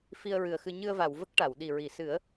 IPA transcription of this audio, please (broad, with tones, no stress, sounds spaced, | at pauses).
f i˧ ə̯ ɹ ɨ˨˩ ə̯ x ɨ˧ ɲ ɨ˧ ə̯ v a˨˩˨ w v ə˦˥ k̚ ʈ a˨˩˨ w ɗ i˨˩ ɹ i˨˩˨ s ɨ˨˩˦ ə̯